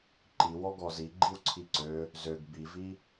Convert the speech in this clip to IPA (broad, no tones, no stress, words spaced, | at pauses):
ǃiwɔ ɡɔzi ɡ͡ǃiwǀʰiǀø | zøɡ bivi